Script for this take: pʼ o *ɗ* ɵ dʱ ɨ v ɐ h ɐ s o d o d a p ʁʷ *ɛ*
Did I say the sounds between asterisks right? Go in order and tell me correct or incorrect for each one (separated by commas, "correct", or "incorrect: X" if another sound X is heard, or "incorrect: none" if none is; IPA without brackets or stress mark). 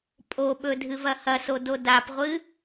incorrect: ɓ, incorrect: ɨ